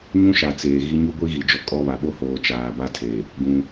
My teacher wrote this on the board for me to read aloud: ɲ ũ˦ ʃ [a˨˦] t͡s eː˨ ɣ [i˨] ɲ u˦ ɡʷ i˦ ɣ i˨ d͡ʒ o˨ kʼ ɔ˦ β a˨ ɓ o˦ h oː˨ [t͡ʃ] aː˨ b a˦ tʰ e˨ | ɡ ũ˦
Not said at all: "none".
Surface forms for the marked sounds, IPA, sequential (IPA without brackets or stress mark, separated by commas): a˨, i˦, t͡ʃ